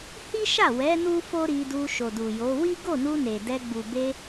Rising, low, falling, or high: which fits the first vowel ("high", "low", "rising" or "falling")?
high